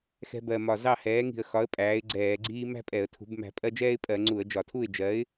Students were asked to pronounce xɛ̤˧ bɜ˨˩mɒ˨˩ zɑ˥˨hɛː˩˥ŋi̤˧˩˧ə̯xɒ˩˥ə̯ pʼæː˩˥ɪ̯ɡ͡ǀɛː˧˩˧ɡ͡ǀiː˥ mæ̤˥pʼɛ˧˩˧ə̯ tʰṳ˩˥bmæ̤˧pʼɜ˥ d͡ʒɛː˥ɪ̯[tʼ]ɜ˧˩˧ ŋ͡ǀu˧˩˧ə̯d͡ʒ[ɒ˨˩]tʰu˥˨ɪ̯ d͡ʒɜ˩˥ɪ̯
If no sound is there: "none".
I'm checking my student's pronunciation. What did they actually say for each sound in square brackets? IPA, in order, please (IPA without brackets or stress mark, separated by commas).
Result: pʼ, ɒ˧˩˧